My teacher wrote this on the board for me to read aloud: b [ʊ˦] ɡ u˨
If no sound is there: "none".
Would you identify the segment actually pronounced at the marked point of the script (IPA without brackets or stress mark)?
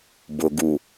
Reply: ʊ˨